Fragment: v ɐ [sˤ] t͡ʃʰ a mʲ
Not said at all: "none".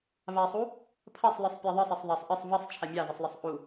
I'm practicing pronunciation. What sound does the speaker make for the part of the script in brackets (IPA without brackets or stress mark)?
sˤ